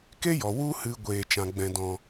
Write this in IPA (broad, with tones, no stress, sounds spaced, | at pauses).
k e˦ j ɔ˨ w u˧ h ɨ˨ ɡʷ eː˨ t͡ʃ ã˨ ɡ͡b ɛ̃˨ d ɔ̃˨